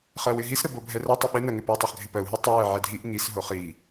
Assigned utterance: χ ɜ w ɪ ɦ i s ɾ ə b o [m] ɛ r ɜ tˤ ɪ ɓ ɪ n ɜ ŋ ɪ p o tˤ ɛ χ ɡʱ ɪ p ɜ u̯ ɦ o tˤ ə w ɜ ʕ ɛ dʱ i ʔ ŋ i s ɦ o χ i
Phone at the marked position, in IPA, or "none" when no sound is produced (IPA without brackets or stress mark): bʱ